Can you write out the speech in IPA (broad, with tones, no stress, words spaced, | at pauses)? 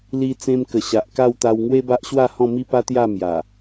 li˧t͡sẽ˧mkə˨˩ ɕa˨ʔka˥˧wt̪a˧w ŋwe˦ba˦ʔɕwa˥˧ hɔ̃˥˧mi˦pa˦t̪ja˥˧ mja˨˩